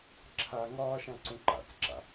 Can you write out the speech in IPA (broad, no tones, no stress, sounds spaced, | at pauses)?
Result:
ǁʰ a ŋ ɒː ʃ ã ǀ ũ ǃ a̰ t͡s ǁ a̰